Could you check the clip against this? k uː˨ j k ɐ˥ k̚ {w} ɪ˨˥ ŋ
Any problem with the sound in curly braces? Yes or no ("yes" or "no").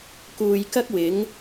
no